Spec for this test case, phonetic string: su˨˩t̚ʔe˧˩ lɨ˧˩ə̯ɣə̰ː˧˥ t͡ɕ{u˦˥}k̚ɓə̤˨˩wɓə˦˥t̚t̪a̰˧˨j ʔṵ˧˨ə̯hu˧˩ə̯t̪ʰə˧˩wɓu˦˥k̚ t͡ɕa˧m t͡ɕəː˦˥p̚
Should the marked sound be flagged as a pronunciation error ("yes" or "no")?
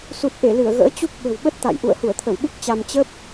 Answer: no